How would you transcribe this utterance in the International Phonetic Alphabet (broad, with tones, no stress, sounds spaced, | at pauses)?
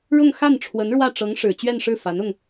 ɻ ʊ˥˧ ŋ x a˥˩ n ʈ͡ʂʰ w ə˧˥ n ɻ w ä˥˩ ʈ͡ʂ ɤ˧˥ ŋ ʂ ɻ̩˨˩ t͡ɕ ɥ ɛ˥˧ n ʂ ɻ̩˥˩ f a˧˥ n ʊ˧ ŋ